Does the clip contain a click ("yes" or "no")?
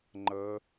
yes